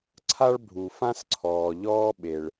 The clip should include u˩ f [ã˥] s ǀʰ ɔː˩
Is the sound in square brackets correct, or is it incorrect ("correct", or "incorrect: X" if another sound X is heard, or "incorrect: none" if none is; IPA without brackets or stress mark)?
correct